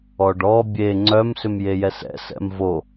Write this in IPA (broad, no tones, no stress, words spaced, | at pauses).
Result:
ɔɖɔ bʲe ŋ͡ǀœm sʏmjejɛsɛ̰ sɛ̰mvo